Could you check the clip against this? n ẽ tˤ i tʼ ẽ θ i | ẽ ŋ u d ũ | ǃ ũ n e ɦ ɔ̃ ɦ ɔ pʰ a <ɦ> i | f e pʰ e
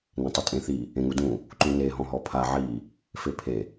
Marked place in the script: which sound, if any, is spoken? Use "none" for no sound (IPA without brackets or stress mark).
ʕ